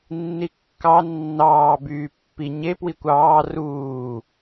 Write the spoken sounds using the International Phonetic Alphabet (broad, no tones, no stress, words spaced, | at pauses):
nːikːɑ nːɑː byːpːi ɲe pwikʷɑː ruː